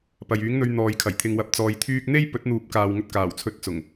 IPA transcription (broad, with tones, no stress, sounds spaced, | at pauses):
p ɐ˨ j yː˨˥ ŋ n̪ ɵ˧ ɥ n̪ ɔː˨ j kʰ ɐ˨˩ j t̪ʰ ɪ˨ ŋ w ɐ˨ p̚ t͡s ɔː˧ j t̪ʰ yː˥ k̚ n̪ e˥ j p ɵ˨˥ t̚ n̪ uː˨˥ p̚ k aː˨ w ŋ ɵ˧ t̚ k aː˨˩ w t͡sʰ ɵ˧ t̚ t͡s ʊ˨˩ ŋ